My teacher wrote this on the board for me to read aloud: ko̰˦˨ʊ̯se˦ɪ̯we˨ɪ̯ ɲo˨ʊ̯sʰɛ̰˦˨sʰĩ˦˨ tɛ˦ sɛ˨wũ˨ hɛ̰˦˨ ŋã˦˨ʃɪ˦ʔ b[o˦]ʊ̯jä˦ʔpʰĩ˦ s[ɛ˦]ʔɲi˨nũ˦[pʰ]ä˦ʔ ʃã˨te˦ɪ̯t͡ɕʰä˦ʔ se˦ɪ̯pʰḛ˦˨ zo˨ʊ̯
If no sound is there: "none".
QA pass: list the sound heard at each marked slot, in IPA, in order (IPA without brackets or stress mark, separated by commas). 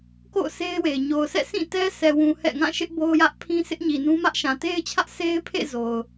o˦, ɪ˦, m